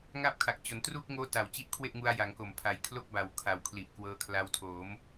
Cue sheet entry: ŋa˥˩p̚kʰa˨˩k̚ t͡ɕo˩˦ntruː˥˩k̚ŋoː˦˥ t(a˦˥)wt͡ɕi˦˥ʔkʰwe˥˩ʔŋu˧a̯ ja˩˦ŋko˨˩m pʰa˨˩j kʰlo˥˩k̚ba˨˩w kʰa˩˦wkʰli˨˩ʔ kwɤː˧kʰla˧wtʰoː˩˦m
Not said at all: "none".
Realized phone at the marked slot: a˨˩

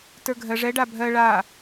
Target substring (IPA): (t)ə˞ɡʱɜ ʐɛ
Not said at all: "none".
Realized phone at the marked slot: t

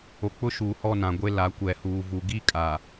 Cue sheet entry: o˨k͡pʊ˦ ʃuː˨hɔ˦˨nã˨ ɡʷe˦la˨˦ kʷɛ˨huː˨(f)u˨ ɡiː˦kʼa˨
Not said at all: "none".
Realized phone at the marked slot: v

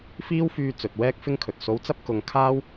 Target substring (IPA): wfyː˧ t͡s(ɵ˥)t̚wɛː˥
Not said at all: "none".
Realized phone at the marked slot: ɵ˨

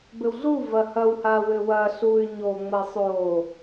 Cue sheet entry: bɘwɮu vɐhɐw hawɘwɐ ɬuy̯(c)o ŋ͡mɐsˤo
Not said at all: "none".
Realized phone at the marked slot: ɲ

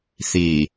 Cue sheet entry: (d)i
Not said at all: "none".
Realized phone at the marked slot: θ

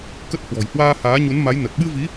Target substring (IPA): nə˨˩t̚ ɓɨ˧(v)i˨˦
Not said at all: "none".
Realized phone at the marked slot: v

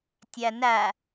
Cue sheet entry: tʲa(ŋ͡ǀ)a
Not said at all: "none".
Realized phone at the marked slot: n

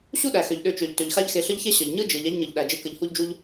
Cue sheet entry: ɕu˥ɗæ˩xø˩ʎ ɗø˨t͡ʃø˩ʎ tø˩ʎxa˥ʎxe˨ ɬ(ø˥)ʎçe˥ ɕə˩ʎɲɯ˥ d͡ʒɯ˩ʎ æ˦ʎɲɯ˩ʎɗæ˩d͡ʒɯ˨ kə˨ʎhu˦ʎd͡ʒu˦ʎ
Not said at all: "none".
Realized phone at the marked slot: ə˥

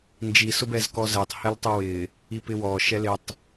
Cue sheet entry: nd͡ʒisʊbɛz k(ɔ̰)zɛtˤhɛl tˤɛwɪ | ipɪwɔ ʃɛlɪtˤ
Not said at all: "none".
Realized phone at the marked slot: ɔ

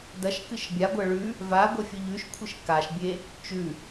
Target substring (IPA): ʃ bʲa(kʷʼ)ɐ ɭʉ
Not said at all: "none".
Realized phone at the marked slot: ɡʷ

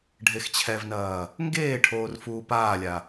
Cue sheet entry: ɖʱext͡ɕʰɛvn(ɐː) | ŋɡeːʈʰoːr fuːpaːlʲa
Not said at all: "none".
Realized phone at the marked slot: ɐː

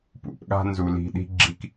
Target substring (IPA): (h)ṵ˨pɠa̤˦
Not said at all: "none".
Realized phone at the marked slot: p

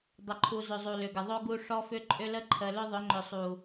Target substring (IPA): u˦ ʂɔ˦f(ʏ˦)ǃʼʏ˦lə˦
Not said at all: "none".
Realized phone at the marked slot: ʏ˦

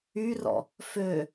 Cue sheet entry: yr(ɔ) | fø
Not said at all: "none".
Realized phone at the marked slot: ɔ̰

